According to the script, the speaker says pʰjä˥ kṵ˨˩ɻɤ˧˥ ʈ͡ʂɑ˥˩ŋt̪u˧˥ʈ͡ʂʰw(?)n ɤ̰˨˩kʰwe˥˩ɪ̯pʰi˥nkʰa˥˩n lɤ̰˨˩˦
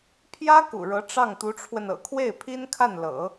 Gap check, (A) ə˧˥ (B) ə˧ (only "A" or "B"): B